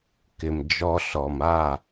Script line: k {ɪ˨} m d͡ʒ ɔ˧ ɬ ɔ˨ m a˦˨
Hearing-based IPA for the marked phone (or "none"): ɪ˨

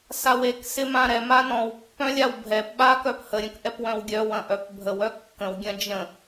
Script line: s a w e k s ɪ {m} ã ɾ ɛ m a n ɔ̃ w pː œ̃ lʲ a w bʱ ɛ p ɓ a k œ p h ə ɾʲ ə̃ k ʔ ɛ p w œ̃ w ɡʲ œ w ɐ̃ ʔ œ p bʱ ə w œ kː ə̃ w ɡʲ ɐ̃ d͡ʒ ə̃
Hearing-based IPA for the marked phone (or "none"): m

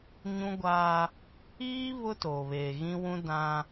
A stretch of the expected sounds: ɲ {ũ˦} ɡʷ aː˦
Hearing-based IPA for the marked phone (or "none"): ũ˦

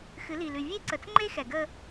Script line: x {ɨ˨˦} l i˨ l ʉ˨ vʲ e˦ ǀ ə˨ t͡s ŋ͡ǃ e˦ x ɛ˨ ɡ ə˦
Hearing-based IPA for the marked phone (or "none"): ɨ˨˦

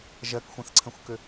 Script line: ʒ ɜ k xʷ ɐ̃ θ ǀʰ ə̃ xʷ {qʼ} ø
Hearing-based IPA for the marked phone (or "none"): k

